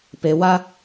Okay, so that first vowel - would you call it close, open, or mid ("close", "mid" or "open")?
mid